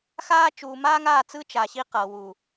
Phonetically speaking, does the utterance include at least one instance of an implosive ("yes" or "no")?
no